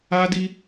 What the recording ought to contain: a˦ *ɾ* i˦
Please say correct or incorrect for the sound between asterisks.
incorrect